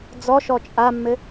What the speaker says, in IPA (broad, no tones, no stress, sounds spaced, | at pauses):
d͡z ɔ ʃ ɔ t͡ʃʼ a mː ɘ